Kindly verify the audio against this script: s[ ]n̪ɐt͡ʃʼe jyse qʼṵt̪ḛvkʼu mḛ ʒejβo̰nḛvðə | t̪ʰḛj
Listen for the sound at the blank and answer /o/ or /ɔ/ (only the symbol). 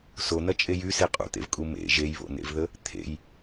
o